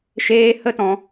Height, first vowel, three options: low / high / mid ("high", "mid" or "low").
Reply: mid